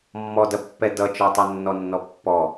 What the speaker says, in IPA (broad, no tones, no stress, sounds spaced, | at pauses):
mː ɔ d ɐ pː ɛ d ʌ t͡ʃ ɔ tˤ ʌ nː ɔ nː ɔ pː ɔ